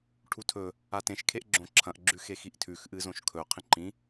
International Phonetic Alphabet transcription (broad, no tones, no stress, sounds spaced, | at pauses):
ʈʰ u tʰ ɵ | a t ẽ ʃ kʰ e ʔ ɡ͡ǁ õ ǁʰ ɐ̃ ʔ ɡ͡ǁ ʉ x e x i ʔ tʰ ʉ x ʔ ɨ z õ ʃ kʰ ɵ qʰ ĩ ǃ ĩ